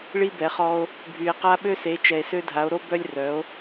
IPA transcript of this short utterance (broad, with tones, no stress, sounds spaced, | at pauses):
ɭ i˦ b ɛ˨˦ χ ɔ˦ o̯ | bʱ y˨ e̯ q a˦ ɓ ø˦ s e˨˦ t͡ʃ ɛ˨ e̯ s ø˦ dʱ a˨˦ o̯ ɾ o˦ b œ˦ lʲ r œ˨˦ o̯